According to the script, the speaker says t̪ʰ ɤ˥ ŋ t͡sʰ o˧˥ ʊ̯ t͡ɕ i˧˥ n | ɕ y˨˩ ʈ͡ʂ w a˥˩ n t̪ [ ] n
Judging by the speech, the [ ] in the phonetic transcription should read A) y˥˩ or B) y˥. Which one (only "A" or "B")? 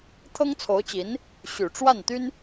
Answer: B